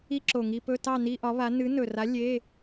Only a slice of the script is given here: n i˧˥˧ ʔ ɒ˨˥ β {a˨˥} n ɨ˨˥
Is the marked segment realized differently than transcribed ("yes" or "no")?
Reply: no